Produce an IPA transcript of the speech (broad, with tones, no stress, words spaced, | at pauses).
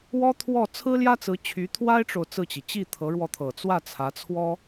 wɔ˥t̪ʰwɔ˥˩ t͡sʰɹ̩˥ljä˥t͡sɹ̩˧˥t͡ɕʰy˧˥ t̪ʰwa˥ɪ̯ʈ͡ʂo˨ʊ̯ t͡sɹ̩˥˩t͡ɕi˩ t͡ɕi˥˩t̪ʰɤ˧˥ɻwɔ˧t̪ʰɤ˨˩ t͡swä˥˩t͡sʰä˧˥t͡sʰwɔ˥